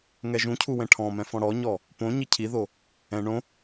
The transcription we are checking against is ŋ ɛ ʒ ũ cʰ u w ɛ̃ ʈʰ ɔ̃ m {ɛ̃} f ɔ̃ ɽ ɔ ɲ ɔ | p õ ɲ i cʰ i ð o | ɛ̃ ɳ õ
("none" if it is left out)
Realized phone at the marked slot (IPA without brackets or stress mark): ɛ̃